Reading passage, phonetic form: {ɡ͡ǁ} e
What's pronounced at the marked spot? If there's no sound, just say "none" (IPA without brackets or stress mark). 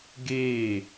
ɡ